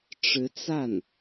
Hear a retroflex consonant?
yes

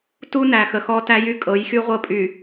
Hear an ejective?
yes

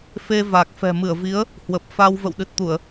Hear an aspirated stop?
no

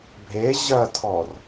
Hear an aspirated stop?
yes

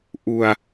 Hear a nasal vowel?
no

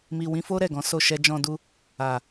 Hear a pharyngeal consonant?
no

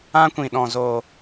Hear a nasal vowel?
yes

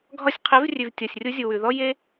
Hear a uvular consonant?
yes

